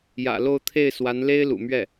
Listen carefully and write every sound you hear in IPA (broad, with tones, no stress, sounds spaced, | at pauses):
j ä̰˨˩ l o˥˧ ʊ̯ t̪ʰ e˥˩ ɪ̯ s w a˧˥ n l e˥ ɪ̯ l ṵ˨˩ m ɥ ɛ˥˩